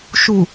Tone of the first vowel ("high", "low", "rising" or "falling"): low